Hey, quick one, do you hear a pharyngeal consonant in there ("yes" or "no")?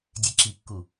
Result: no